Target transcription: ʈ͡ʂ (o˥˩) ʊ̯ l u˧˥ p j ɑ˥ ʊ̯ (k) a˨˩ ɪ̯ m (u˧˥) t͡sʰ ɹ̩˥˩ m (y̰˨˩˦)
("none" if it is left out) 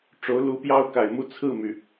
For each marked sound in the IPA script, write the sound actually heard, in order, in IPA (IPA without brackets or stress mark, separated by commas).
o˧˥, k, u˥˧, y˩